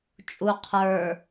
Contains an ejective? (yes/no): yes